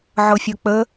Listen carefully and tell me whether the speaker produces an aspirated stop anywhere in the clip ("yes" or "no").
no